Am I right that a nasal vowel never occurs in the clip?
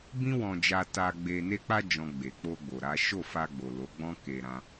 no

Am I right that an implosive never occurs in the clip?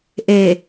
yes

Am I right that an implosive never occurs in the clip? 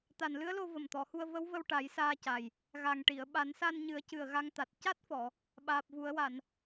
no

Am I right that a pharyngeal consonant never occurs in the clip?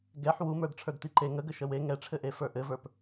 no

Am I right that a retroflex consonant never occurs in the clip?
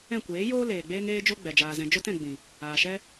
yes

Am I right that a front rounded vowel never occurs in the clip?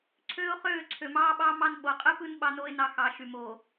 no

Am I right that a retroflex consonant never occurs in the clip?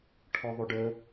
no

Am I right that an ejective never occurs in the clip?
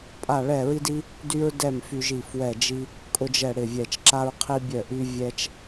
no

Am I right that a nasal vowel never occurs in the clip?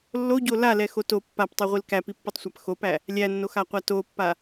yes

